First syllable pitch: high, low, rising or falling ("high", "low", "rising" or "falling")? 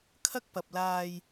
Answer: high